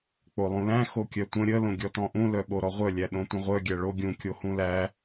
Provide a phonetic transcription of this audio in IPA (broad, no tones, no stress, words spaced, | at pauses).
k͡polˠũlæ̃ xokʲœtʷə̃ ɾʲə lõɡʲɔtɔ̃ʔũ lœɓoɾɔʁʷœ lʲæɗõtʷə̃ʁʷœ ɡʲæɭo ɡʲũ kʲohũlæ